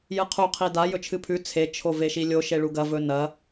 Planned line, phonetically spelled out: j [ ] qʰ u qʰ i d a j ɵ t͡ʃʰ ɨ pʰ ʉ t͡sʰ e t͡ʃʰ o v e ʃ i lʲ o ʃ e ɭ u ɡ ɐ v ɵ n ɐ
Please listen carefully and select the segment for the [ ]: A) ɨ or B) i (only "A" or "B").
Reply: A